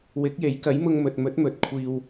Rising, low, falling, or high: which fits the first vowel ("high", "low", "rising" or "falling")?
rising